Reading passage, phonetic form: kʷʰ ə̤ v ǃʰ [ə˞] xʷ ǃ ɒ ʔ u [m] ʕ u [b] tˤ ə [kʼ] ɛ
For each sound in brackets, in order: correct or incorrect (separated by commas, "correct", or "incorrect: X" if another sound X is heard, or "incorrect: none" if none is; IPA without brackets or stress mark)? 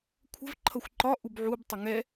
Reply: incorrect: ʌ, incorrect: b, correct, incorrect: ŋ